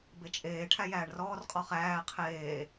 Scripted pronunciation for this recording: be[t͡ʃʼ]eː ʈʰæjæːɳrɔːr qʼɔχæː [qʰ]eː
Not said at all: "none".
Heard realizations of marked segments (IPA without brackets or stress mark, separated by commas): t͡ʃʼ, qʰ